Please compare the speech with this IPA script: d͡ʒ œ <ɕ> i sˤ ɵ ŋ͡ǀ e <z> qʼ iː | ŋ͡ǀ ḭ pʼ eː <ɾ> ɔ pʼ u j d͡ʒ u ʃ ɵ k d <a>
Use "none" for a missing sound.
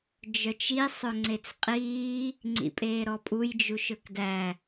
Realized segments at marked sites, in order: t͡ʃ, t͡s, ɾ, æ

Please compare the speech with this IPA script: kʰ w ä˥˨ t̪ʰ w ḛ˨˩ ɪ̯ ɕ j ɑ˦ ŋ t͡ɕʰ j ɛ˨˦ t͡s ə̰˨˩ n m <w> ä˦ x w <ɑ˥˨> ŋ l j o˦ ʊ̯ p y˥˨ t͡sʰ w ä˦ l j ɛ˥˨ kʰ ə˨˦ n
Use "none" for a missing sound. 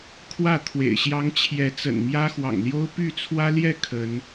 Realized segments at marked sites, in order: j, ɑ̰˨˩

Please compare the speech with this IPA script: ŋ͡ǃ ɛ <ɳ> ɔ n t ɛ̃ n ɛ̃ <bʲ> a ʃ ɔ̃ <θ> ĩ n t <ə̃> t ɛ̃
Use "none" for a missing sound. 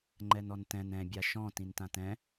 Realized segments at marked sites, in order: n, bʲ, t, ã

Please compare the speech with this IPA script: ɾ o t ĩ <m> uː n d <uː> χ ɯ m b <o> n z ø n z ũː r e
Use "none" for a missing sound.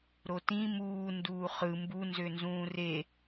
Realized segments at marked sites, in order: m, uː, u

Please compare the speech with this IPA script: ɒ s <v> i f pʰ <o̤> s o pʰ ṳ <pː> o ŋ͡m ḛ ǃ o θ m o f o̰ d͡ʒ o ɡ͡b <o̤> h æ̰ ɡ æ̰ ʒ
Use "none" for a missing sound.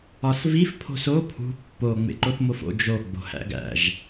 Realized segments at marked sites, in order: v, o̤, pː, o̤

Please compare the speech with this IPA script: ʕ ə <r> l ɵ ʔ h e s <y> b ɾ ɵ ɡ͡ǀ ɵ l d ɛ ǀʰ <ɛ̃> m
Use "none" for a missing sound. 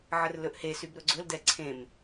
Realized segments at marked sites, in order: r, y, ẽ

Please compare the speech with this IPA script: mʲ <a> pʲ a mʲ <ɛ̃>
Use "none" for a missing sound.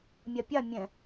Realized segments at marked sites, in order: a, ɛ̃

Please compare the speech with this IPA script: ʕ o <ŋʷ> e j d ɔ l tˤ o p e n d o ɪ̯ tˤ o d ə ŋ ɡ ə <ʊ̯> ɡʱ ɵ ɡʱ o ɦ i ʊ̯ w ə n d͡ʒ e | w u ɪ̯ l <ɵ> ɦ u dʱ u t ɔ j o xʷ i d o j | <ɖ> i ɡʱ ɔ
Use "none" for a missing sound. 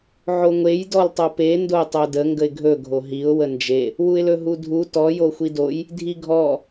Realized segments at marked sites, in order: ŋʷ, ɪ̯, ɵ, dʱ

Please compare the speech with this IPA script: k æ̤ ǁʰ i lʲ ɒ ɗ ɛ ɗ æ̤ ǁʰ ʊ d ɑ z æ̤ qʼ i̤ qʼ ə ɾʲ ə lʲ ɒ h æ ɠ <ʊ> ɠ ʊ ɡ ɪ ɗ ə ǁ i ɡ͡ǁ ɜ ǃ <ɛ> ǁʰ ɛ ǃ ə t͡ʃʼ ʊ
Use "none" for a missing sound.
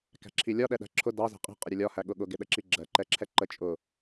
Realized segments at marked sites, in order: ʊ, ɛ

